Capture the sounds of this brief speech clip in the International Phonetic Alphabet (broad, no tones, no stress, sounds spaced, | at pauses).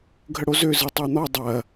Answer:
ɡʱ ə ɽ o z ø z ɯ tˤ ø n̪ ɔ dˤ ɐ